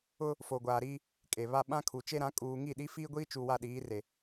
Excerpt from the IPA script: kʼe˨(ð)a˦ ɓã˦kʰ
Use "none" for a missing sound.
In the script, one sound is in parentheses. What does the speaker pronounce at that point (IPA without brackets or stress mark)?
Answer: β